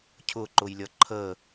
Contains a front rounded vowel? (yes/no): no